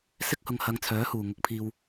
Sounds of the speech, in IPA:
s ɪ˥ k̚ h ʊ˨ ŋ h ɐ˨˧ ŋ t͡sʰ œː˨˥ h uː˨˩ ŋ ʊ˧ k̚ pʰ iː˧ w

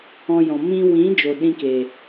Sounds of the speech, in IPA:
ɔ̃˧ j ɔ̃˨ m ĩ˧ w ĩ˨˦ d͡ʒ o˨ ɗ ĩ˧ k eː˨

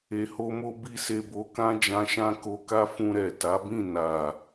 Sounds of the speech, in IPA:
e˧ h o˦ m o˦ b i˦ s e˧ b o˧ k ã˦ d͡ʒ ã˧ ʃ ã˦ k o˧ k a˦ f ũ˧ ɾ ɛ˨ t a˨˦ b ĩ˦˨ n a˨

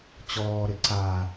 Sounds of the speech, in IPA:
t͡ɕ ɔː ɾ ɪ ǀ a

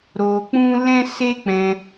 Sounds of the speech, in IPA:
ɾ o˧ k͡p ũ˦ l ɛ̃˦ s e˦ k͡p ɛ̃˧

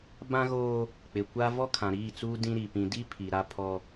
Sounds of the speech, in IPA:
b ã˦ ɣ oː˦ | k͡p ɪ˨ kʷ a˦ v ɔ˦ kʰ ã˨ ɾ iː˦˨ t͡s uː˦ d ĩ˦ ɾ i˨ p ĩ˨ d i˦ pʰ i˨ ɾ a˦ pʰ ɔ˦

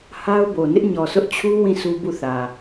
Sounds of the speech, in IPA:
h a˦ ʊ̯ b o˨ n ɪ˦ ʔ ɲ ɔ˨ sʰ ʊ˦ ʔ t͡ɕʰ u˦ w ĩ˦˨ sʰ u˦ b u˦˨ θ ä˨

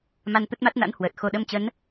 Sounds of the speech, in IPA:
m a˧ n t̪ ə˦˥ t̚ m a˦˥ t̚ n a̰˧˥ n h w əː˨˩ t̚ x o˧ ɗ ə˧ m t͡ɕ ə˨˦ n

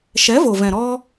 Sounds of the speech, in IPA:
ʃ ɛ˨˦ v o˨ v ɛ̃˨ ɾ ɔ˧

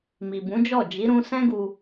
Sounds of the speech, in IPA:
m i˨ b ũ˨˦ d͡ʒ ɔ˦˨ d͡ʒ i˨˦ ɾ ũ˧ s ɛ̃˦ ɡ u˧

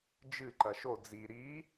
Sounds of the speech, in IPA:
d͡ʒ ɨ ǃ ɐ ʃ o d͡z i ɾ i

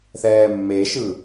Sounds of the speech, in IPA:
θ ɛː mː e ʃ ɯ

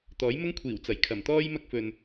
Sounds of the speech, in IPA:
t̪ ɔː˨˥ j m ʊ˥ ŋ kʷʰ iː˨˩ w t͡s ɐ˨˩ j kʰ ɐ˨˩ m t̪ ɔː˥ j m ɐ˥ k̚ f ɵ˨ n

